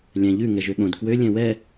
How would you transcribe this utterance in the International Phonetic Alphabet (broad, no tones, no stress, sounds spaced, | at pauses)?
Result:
lʲ æ̃ ʎ ʉ ŋ ɛ ʒ ø ɠ õ d k w ø lʲ ɛ̃ w ɛ